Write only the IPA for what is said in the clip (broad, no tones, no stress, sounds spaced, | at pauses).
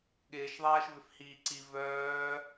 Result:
ɠ ɪː ʃ ðˤ aː ʃ v ʏ f h iː ǀ i v œː